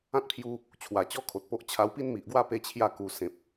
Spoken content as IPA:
ã˦ t̚ pʰ j u˧ | t͡ɕʰ w a˨˩ t͡ɕ ɔ˦ kʰ o˨ t̚ p o˦ ʔ t͡ɕʰ a˧ w p i˥˧ n m i˨ ʔ ɡ w a˥˧ p e˦ t͡ɕʰ j a˥˧ k u˧ s ẽ˨ p̚

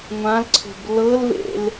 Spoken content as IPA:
ŋʷ ã l ǀʰ o̤ b l ɤ l v ḛ l

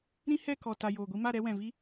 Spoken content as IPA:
ɾ ĩ˦ h ɛ˦˨ k ɔ˨ t a˨ j oː˨ ɡʷ i˧ m a˦˨ ɾ ɛ˧ w ɛ̃˨ v i˧

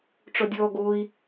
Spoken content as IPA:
ʈ͡ʂ ɔ dʲ ɔː ɡ oː i̯

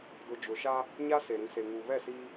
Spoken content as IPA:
d ʊ˨ d͡ʒ ʊ˨ ʃ a˦ | ɲ a˦ s e˨ ɾ ĩ˨ s e˨ ŋ uː˨ β ɛ˦˨ s iː˦

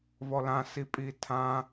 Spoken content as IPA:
v ɔ l ã s i pʼ i tʰ ã

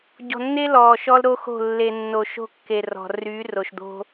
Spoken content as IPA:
ɟ ɔ̤˨ nː e˦ l ɔː˨ ʃ ɔ˦ l ɾ o˦ x o̤˦˨ lː e˨ nː o˨ ʃ o̤˦ kː e˨ r ɔ̤˨ r yː˨˦ r o˨ ʃ d̪ o̤˦

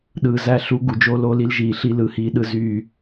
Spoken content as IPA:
ɗ ɯː˨ z æ˦˨ ɬ u˦ ɡ u˨ d͡ʒ o˦ l oː˦ l i˦ l ʒ iː˨ ɬ i˦ l ɯ˨ h iː˦ ɗ ɯ˦ z yː˦˨

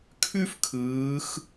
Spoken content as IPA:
kʰ ʉ˥ f kʰ ɯː˩˧ x

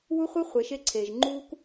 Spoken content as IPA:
w u˦ χʷ ɯ˦ χʷ e˨˦ ʃ e˦ ǀʰ eː˨ ʒ ŋ͡ǃ uː˦ k

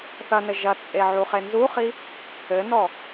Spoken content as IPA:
θ ɐ n ɘ ʒ ɐ t͡sʼ e ʕ u χ e n z u χ i | ɘ n ɔ

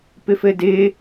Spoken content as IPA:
p ɪ f ɘ d ɪː

